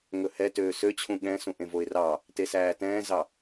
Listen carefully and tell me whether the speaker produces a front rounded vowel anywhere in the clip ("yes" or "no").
yes